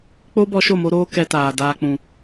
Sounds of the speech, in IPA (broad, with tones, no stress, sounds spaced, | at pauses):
k͡p o˦ b ɔ˧ ʃ o˦˨ m o˧ ɾ oː˧ k ɛ˧ t aː˨ d aː˨ k͡p ũ˨